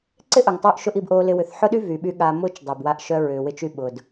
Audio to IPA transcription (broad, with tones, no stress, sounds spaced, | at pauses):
ǀ ɪ˦ ʔ ʊ˨ ŋ tˤ u˧ ʔ ʃ ʊ˦ ʔ i˧ b ʔ oː˧ l ɪ˧ w ʏ˨ θ ħ ʊ˦ ɗ y˦ v y˨ ɓ y˧ ɠ a˧ m ʊː˧ t͡ʃ dˤ ʊː˨ b w a˧ ʔ ʃ œ˧ ɹ ʏː˨ w ɪ˧ t͡ʃ y˧ ɓ ʊ˨ d